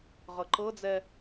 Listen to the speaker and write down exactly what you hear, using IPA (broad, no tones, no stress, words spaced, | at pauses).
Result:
ʁɤǃɤd͡zɛ